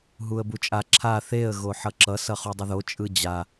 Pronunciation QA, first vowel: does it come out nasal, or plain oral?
oral